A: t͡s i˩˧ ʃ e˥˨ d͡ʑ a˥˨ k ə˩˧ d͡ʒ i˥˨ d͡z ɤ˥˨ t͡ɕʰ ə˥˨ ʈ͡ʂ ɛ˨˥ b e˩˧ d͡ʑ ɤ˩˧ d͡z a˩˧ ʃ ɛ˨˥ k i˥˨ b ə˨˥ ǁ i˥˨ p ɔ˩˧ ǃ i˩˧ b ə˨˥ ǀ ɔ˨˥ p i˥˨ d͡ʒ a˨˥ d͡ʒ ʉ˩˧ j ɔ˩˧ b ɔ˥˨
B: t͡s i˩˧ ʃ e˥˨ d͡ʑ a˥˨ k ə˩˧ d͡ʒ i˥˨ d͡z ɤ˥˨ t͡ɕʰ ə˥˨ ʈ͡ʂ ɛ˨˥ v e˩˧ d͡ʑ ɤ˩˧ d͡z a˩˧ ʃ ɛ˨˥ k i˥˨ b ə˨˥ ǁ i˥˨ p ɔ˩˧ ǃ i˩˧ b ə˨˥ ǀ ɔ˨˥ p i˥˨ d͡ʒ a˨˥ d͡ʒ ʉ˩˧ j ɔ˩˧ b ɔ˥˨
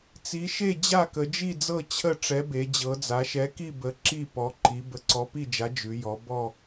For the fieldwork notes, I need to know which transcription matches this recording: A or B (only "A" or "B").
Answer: A